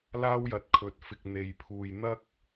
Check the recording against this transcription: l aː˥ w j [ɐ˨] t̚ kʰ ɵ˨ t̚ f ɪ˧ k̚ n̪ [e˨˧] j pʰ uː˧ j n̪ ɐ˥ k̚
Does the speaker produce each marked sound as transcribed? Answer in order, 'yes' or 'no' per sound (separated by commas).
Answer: yes, no